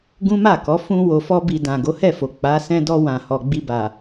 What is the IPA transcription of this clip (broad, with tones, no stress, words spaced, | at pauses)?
ɡũ˦ma˦˨kɔ˨˦ fũ˧ wo˨fɔ˧bi˨ dã˨ɡo˨˦hɛ˦˨fo˨ k͡pa˨˦ sɛ̃˧dɔ˧ wã˨hɔ˨ɡ͡bi˧ba˨